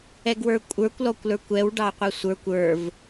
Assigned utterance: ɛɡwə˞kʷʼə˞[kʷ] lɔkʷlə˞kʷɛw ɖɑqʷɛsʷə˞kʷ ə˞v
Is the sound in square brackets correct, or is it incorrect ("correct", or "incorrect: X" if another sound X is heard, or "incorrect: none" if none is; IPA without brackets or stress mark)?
correct